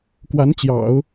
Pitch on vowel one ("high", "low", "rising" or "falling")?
rising